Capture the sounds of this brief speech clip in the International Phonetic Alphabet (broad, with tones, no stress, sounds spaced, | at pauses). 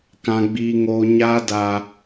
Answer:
k ã˨ ɡ͡b iː˨ ŋ oː˨ ɲ a˦ d a˨